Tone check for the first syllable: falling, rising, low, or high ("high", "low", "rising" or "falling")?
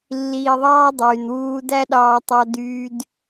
low